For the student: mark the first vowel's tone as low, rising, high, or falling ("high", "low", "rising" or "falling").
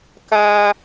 high